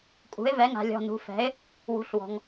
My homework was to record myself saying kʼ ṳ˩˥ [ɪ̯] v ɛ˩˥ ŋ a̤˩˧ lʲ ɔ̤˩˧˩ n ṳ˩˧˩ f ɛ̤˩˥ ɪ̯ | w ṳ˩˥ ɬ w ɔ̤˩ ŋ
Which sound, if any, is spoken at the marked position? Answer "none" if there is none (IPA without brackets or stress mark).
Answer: ɪ̯